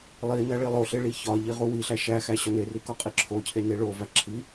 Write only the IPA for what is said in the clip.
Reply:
lˠinæ ɭilˠoɬe ɭiçɒʎi ʁuwiɬæ ʃæxæ ɕɒneri kɒqʼiǁʰocʰe neɭovæ ǁʰi

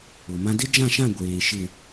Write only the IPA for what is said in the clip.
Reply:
ʊ˨mã˦ dɪ˦d͡ʒã˦˨ʃã˦˨ ɡʷeː˨ ʃɪ˨

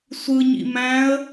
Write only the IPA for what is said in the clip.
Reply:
sʷɯɲḭ mæ̃ə̯

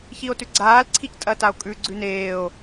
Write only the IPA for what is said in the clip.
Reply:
çio̯tʉɡ͡ǀaːl ǀʰictʼɐtao̯kʼʉ ɡ͡ǀʉneːo̯

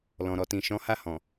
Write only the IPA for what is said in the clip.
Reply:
lɔ̃˨ ɾɔ˨tĩ˨ ʃɔ̃˨˦ha˦˨ hɔ̃˨

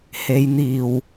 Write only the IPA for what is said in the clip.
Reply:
he˨˧jn̪iː˨˩w

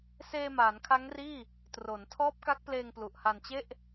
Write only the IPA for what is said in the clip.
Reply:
seː˧maː˩˦nkʰa˦˥ŋriː˥˩ | tro˩˦n tʰɔː˦˥p̚ka˦˥k̚pleː˧ŋ plu˨˩ʔha˧nt͡ɕe˥˩ʔ

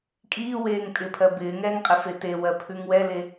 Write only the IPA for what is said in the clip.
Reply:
kʼiːweːŋ tʼɪpʰɜ bɪːŋɛːŋ qʼɪfetewɜ pʰʉŋwɛle

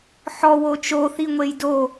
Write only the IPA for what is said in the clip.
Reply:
ħɔ wot͡ʃo θiŋʷejdo

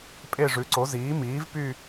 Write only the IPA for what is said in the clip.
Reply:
pʼe˥˧ʐʉ˨˥ǀo˨˥ ziː˨˥miː˨˥vpy˥˧

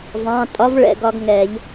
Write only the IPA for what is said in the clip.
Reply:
vɑ̃˩˧˩tʼɒ˨˥vɭɛ̰˩˧˩ ɡɒ˦ɡŋɛ˨˩˦ʎ

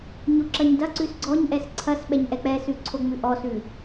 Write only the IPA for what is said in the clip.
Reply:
ɲoǁɐɲdɐǀʉs ɡ͡ǀɔɲʔɛs ǀʰɐs ɓɛɲʔɛk͡pɛsʉ ǀʰoŋ͡mʉʔɔsʉ

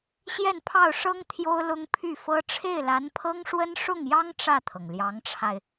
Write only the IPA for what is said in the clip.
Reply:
ɕjɛ˥˧n pʰɑ˥˩ʊ̯ʂɤ˥ŋ t̪ʰjo˥ʊ̯lʊ˥ŋ pʰy˥˩fɤ˥ ʈ͡ʂʰe˥˩ɪ̯la˧˥npʰɤ˥ŋʂwə˥n ʂʊ˥˩ŋjɑ˥ŋ ʈ͡ʂä˥˩t̪ʰɤ˩ŋljɑ˧˥ŋʈ͡ʂʰa˧ɪ̯

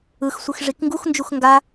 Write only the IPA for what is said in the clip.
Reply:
ɯxsʷɯx ʐikŋɡuxnd͡ʒux ŋɡa

